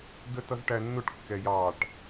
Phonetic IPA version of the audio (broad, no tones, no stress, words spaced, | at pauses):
dətʌzʈænːʊʈ kːɛjɑʈ